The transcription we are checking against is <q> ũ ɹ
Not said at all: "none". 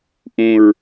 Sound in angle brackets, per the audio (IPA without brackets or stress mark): ʔ